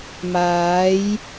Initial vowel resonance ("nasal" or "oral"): oral